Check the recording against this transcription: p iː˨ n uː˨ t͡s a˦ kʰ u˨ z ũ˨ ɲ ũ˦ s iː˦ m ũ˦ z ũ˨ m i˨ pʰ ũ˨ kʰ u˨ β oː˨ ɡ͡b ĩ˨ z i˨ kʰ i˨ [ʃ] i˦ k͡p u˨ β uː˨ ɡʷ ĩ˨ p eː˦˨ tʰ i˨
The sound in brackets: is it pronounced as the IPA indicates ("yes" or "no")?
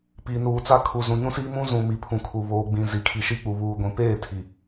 yes